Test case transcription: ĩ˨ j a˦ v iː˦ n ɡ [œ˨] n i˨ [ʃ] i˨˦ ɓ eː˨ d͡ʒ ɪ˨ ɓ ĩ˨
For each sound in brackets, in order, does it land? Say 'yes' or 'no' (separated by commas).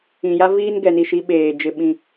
no, yes